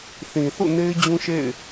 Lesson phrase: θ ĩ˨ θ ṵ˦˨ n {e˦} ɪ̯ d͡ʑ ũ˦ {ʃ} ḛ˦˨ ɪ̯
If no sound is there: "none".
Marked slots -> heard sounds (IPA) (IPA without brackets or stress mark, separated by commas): e˦, ʃ